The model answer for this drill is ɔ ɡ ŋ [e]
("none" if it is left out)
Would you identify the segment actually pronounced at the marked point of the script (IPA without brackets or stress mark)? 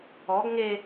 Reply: e